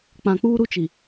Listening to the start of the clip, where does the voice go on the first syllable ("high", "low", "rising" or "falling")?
low